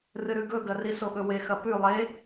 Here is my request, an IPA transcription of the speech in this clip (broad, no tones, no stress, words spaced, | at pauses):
rɨɾʉɡɵɡɐ risoɠɵwe xɐpʉ lˠe